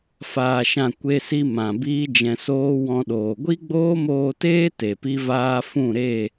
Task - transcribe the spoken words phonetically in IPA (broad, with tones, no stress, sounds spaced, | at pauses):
f aː˨ ʃ ã˨ kʷ e˧ s i˧ m ã˨ b iː˦ d͡ʒ ɛ̃˧ s oː˦ w ɔ̃˧ ɗ oː˨ ɡʷ i˦ ɡ͡b oː˦ m oː˧ t eː˦ t e˨ p i˦ v aː˦ f ũ˦˨ ɾ e˦˨